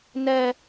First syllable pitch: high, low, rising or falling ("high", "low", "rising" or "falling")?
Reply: high